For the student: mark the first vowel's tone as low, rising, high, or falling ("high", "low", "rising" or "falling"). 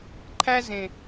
high